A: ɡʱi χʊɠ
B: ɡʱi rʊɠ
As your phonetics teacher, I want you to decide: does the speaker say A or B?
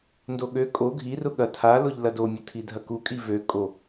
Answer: B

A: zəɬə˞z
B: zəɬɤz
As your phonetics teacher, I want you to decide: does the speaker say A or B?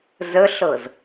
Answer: B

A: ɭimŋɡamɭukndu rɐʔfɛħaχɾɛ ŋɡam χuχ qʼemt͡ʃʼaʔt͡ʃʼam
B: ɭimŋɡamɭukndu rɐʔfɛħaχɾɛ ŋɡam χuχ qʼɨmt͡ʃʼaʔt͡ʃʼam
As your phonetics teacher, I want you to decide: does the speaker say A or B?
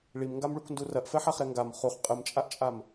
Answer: B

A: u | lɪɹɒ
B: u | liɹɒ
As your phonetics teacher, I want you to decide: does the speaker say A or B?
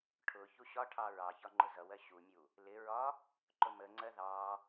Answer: A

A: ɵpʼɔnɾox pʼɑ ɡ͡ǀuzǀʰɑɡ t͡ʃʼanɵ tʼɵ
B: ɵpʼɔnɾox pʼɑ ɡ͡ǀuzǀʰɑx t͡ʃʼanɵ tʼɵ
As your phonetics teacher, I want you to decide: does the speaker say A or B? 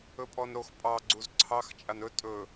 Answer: B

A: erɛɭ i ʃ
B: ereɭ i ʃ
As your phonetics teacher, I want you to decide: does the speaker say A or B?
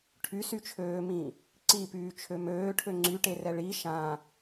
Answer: A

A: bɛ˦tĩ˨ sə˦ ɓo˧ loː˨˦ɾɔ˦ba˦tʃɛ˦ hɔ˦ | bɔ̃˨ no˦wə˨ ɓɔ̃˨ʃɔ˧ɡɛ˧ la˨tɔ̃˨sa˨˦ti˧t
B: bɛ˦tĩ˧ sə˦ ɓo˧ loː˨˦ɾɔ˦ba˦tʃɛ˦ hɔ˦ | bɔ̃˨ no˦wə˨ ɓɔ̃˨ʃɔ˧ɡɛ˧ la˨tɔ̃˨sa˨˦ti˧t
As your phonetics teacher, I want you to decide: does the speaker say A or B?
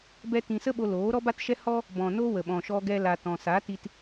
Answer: B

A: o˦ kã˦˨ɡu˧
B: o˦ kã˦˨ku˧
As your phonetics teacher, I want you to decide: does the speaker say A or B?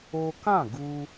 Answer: A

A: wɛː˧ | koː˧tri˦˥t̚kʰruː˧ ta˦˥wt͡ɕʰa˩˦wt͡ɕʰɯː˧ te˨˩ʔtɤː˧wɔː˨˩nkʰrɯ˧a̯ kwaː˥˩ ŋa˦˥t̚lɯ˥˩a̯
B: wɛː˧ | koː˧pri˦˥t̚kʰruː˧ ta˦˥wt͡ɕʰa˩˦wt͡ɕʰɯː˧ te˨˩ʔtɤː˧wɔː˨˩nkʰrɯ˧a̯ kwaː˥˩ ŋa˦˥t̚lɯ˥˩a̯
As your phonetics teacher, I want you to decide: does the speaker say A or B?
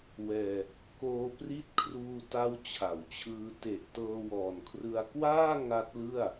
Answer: B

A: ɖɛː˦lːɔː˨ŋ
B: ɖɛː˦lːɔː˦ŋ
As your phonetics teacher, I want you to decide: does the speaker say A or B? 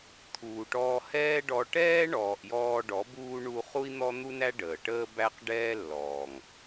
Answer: A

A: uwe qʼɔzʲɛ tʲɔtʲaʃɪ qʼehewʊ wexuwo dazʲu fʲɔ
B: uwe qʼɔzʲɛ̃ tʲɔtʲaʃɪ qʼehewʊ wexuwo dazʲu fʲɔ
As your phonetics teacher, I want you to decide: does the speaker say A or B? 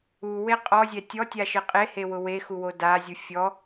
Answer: A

